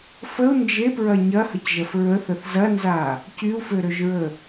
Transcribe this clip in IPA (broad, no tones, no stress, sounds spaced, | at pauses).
f ə u̯ n d͡ʒ e p ɹ ɐ ɲ ɐ h ə c ʒ ɐ f ɹ ə θ ə θ z ɐ n z a | c y u̯ f ø ɾ ø ʒ ɹ ə